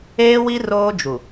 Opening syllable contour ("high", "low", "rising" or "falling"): high